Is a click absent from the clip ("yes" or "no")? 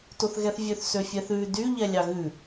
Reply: yes